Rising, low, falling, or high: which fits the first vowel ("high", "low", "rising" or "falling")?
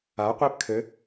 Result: rising